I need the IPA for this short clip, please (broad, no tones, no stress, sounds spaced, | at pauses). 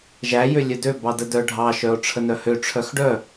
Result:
ʒ æ j ø lʲ œ d ø b ɑ d ə d œ ɖʱ ɑ ʃ œ o̯ ʈ͡ʂʰ ə n œ h ø ʈ͡ʂʰ œ x ɖ œ